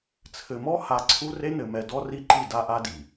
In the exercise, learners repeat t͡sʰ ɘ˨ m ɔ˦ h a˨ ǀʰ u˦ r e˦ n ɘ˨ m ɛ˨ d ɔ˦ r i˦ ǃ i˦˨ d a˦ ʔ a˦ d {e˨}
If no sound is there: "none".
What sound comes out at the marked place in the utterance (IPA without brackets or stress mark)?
i˨